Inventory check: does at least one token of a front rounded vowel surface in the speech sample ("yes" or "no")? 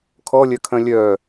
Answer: yes